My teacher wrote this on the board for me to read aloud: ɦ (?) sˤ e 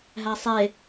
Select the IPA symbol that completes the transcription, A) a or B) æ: B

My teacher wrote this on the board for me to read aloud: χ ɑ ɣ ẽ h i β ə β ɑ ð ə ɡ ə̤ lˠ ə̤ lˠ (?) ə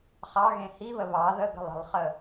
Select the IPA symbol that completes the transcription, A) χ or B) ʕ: A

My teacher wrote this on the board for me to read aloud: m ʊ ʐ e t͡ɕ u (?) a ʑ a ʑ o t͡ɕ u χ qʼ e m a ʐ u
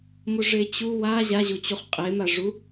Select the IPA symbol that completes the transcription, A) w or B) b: A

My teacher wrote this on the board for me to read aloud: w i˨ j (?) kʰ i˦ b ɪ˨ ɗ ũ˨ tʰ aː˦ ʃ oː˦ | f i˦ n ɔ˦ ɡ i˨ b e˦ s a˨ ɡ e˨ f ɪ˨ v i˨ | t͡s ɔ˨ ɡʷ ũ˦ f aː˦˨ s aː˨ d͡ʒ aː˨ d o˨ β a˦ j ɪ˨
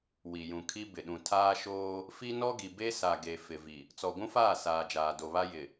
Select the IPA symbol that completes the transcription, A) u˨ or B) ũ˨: B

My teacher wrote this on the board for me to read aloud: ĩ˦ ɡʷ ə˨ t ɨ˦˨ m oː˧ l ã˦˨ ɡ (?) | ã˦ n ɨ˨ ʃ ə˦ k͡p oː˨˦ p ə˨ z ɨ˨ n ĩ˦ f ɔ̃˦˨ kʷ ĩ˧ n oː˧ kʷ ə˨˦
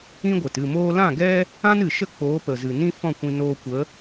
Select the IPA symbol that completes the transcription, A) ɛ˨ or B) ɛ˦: B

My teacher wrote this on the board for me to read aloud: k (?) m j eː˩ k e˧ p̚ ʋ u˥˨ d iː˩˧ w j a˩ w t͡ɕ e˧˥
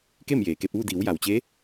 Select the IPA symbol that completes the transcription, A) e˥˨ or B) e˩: A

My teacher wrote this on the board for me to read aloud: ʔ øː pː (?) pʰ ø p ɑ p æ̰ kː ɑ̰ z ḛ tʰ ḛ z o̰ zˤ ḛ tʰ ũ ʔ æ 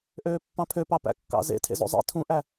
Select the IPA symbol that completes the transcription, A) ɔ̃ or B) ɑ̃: B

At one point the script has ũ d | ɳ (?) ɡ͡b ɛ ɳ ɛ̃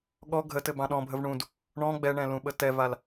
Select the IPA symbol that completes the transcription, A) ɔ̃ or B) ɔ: A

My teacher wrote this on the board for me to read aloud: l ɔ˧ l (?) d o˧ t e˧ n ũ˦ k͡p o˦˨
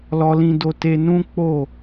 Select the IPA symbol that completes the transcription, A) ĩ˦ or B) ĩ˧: B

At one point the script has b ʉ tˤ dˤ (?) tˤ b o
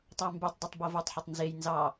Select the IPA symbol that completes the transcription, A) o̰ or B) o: B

